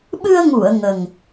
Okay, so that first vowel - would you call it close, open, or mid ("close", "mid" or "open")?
close